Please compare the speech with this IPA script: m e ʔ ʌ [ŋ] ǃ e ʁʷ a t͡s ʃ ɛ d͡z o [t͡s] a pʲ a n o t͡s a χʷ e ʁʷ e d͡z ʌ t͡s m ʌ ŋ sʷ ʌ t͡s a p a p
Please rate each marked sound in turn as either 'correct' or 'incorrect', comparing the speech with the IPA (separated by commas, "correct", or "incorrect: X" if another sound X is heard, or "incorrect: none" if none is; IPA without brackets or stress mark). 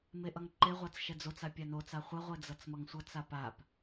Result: correct, correct